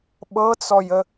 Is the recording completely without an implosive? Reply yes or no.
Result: no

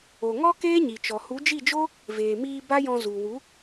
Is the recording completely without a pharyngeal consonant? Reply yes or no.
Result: yes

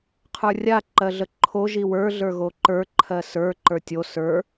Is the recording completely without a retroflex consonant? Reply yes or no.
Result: yes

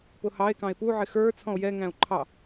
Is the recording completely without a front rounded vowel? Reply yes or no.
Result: yes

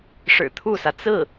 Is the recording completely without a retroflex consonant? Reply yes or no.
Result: no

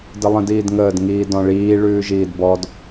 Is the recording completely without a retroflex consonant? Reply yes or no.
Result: no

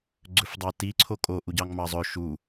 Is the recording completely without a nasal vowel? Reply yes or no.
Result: yes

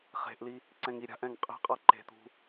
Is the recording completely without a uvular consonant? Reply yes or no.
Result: no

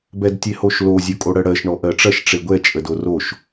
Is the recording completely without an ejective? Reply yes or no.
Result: no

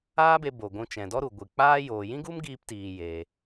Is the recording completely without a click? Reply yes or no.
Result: yes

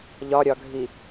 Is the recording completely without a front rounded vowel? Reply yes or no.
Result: yes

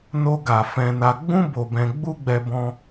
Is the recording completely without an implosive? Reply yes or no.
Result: yes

